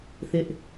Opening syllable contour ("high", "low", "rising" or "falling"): high